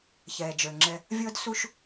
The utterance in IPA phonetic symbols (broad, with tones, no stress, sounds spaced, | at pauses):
ç ɛː˩ d͡ʒ ə˞˩ ŋ͡ǁ ɛ˨ | vʲ ɤ˦ d s u˦ ʃ